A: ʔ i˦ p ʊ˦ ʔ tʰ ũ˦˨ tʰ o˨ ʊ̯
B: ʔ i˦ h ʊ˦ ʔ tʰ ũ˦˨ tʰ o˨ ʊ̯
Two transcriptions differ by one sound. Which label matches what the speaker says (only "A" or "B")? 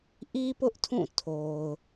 A